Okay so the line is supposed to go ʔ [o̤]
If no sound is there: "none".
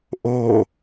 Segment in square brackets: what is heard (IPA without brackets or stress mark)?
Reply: o